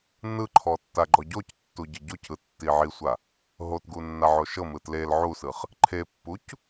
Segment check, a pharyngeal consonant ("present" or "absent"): present